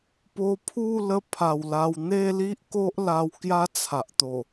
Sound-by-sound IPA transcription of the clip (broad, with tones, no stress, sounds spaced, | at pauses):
p o˧ pʰ u˥˧ l ə˧ pʰ a˨˩ w l a˧ w n̪ e˥˧ l i˦ ʔ k o˦ ʔ l a˧ w k j a˦ t͡sʰ a˨ ʔ t̪ o˨˩